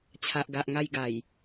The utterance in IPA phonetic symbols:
t͡ɕʰ a˨ ʔ ɡ a˨ ʔ ŋ a˧ j ɡ a˨˩ j

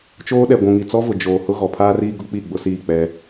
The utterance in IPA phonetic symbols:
t͡ʃ oː˦ ɗ ɛ˨ ɡʷ ũ˨ ŋ i˨ t͡s ɔ˦ v ʊ˨ d͡ʒ oː˨ h ʊ˦ ɣ ɔ˨ pʰ aː˦ r iː˦ ɡ ʊ˦ k͡p i˦˨ ɡ͡b ʊ˦ s iː˦˨ k͡p ɛ˦

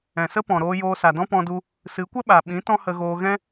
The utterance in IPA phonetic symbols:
ɛ̃˨ s ə˦ p ɔ̃˨ ɾ oː˧ j oː˧ s a˨ d ɔ̃˦ p ɔ̃˧ d u˧ | s ɨ˨˦ kʷ ə˦ ɓ a˨ ɓ ĩ˨˦ t ɔ̃˦ h ə˧ ɣ oː˧ ɣ ɛ̃˦

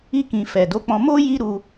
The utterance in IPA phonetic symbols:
i˦ k ĩ˧ f ɛ˨ d o˨˦ k͡p ɔ̃˧ m o˦ j i˦ ɾ u˧

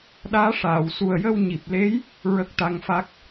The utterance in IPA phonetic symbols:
ɗ aː˧˥ ʂ aː˨˩˨ w s u˨˩ ə̯ j ə˧ w ɲ i˨˩ p̚ l e˧˥ j | ɹ ə˦˥ k̚ t̪ a˧˥ ŋ f a˦˥ k̚

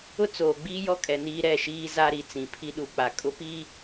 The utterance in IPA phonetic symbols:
ʊ˦ t͡s oː˨ ɡ͡b iː˦ j ɔ˦ kʼ ɛ˨ n iː˦ ɾ ɛ˦˨ ʃ iː˦ z a˦ ɾ i˨ t͡s ĩ˨ pʰ i˦ ɗ u˨ k͡p a˨ kʼ ʊ˦ p i˦

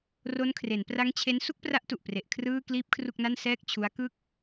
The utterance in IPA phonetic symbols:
r o˦˥ n kʰ r e˩˦ n p r a˦˥ ŋ t͡ɕʰ e˦˥ n s u˥˩ k̚ p r a˦˥ ʔ t u˨˩ ʔ p r e˨˩ ʔ kʰ r ɯː˥˩ k l iː˦˥ p̚ kʰ r u˥˩ k̚ n a˥˩ n s ɛː˥˩ k̚ t͡ɕʰ u˦˥ a̯ k ɯ˥˩ k̚

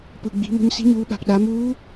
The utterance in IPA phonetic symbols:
p ɯ˩ ɡ͡b i̤˩˧ m o̤˧ ɲ s i̤˧˥ ɲ uː˩˧ ɓ a̤˩ p ɗ a˩˧ m uː˧˥

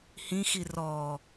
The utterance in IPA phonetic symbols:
h ĩ x i r ɔ

